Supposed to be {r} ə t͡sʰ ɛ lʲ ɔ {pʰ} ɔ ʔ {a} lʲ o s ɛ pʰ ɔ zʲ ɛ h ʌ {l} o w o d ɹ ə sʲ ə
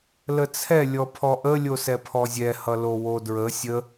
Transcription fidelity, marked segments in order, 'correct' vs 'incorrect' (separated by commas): incorrect, correct, incorrect, correct